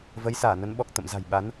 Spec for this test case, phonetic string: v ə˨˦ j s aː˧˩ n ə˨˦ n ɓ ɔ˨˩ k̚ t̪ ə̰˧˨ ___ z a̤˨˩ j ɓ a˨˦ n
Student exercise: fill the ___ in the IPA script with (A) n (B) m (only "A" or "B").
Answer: B